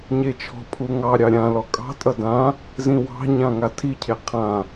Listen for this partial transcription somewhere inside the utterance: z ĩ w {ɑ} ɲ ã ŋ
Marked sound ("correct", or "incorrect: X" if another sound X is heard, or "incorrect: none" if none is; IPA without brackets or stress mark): incorrect: ɑ̤